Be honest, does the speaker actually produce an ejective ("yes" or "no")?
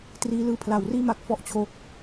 no